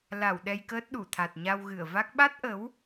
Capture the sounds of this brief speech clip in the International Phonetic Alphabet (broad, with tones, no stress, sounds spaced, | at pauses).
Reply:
l a˧˩ w ɗ ɛ˧ j k əː˦˥ t̚ ɗ u˧˩ t̪ʰ a˨˩ t̚ ɲ a˧ w ɣ ɨ˧˩ ə̯ v a˦˥ k̚ ɓ a˦˥ t̚ ʔ ə˨˦ w